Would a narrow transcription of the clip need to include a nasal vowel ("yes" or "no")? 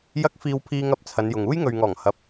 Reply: no